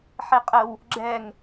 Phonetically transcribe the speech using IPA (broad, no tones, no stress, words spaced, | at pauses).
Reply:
ħeqʼəw | ɡ͡ǁɛŋ